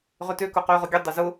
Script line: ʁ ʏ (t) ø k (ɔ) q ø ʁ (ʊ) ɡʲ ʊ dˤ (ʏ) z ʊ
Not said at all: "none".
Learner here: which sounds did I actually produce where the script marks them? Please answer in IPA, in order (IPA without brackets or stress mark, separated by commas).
t, ʊ, ʊ, ʏ